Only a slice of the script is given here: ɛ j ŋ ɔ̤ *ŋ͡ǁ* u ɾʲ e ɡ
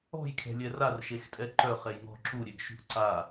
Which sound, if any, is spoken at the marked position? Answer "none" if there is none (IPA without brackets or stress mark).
ǁ